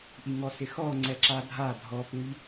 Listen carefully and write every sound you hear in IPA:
ʔ i ŋ ɔ s ɪ x ɔ ŋ͡ǀ ɛ ǁ a dʱ a dʱ ɔ p u ʎ

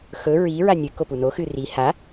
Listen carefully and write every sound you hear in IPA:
x ɵ ɹ i ɹ a nʲ ɨ k o p u n o x ɨ r i h a

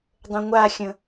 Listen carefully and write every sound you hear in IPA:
dˤ ə̃ ŋʷ a xʲ ə̃

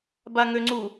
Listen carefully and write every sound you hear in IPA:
b a ŋ ø ŋ͡ǀ u

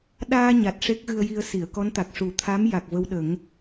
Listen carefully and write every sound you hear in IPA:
ɗ aː˧ ɲ a˨˩ t̚ ʂ e˦˥ k̚ ɣ ɨ˧ ə̯ j i˧ ə̯ s i˨˩˨ ə̯ k ɔ˧˥ n t̪ a˨˩ k̚ ʂ u˨˩˦ t̪ʰ a˧˥ m j a˨˩ k̚ v ə˧ w ɗ ə˨˩˦ ŋ

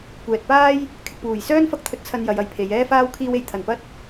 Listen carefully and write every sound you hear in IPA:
kʷ ɛː˨ t̚ p aː˥ j | kʰ ɪ˨ k̚ p uː˨˩ j s œː˥ n f ɐ˥ k̚ t̪ʰ ɵ˧ t̚ t͡sʰ ɐ˧ n j ɐ˨˧ j ɐ˨˧ j pʰ e˨˧ j ɛː˥ f aː˥ w kʰ iː˥ w e˧ j t̪ʰ ɐ˨ n p ɐ˥ t̚

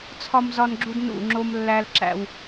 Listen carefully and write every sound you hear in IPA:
t͡sʰ ɒ˦ m z ɒ˦ n ɡ͡ǁ u˦ d n ṵ˦˨ ŋ͡ǁ o˦ m lː æ˦ l ǁ æ̰˦ w

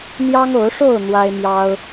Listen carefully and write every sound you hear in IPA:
n̪ j ɑ˦ ŋ o˨˦ ʊ̯ ʂ o˥˨ ʊ̯ n̪ w a˦ ɪ̯ m j ɑ˦ ʊ̯

